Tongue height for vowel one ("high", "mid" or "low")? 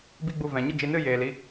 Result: high